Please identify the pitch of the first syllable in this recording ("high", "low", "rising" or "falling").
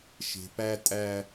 high